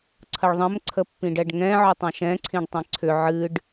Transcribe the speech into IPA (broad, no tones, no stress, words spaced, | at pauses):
ǀʰəɭðˤə̃m ǀʰəpːĩɖɛɖŋɛ̃ ʕʏtˤãʃɛ̃ ǀʰĩɖtˤɛ̃ǀʰʏ ʕɨɖ